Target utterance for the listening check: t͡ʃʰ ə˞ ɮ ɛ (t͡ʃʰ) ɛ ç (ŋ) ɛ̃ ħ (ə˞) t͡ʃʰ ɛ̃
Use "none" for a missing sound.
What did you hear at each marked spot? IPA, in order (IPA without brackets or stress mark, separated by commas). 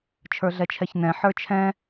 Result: t͡ʃʰ, n, ə˞